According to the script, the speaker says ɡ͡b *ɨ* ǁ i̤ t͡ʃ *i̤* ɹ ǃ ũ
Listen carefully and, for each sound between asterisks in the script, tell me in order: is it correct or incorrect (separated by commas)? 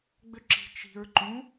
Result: incorrect, correct